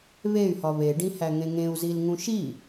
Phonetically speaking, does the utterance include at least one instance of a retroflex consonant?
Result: yes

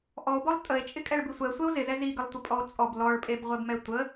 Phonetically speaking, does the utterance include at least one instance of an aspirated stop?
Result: no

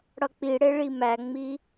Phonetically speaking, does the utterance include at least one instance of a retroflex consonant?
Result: yes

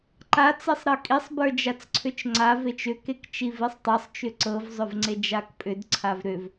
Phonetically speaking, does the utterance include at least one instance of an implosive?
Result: no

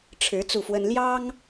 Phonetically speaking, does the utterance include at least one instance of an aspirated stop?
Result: yes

